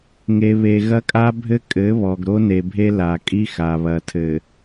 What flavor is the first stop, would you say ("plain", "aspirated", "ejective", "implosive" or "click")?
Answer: ejective